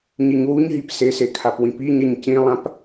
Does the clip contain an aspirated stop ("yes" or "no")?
yes